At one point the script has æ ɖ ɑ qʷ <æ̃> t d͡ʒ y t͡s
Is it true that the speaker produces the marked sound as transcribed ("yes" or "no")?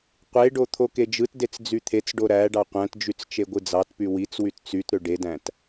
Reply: yes